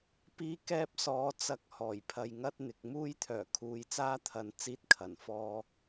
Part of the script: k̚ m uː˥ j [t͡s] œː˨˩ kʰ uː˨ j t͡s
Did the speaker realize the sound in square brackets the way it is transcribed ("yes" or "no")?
no